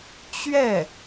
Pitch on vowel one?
falling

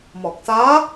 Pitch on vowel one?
low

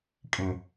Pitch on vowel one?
low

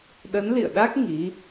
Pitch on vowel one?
rising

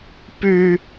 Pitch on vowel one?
high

